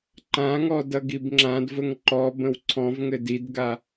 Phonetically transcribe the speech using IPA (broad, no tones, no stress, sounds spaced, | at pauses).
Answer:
ǃ ã ŋ ɔ d ʌ ɡ i b ŋ͡ǁ ã d v ə ŋ ǃ ɔ b ə̃ w ǀʰ ɔ̃ v ŋ ɘ d i d ɡ a